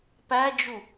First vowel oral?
yes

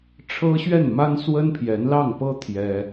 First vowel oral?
yes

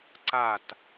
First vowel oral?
yes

